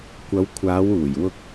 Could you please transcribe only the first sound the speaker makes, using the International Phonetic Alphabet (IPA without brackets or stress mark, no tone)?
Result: kʷ